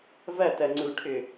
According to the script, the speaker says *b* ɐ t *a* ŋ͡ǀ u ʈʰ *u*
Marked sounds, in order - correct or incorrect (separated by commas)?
incorrect, incorrect, incorrect